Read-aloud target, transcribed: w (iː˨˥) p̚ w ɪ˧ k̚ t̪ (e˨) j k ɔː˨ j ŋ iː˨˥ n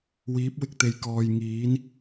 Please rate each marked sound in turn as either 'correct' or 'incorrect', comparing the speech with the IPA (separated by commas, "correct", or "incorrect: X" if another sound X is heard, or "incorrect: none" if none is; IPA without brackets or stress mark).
correct, correct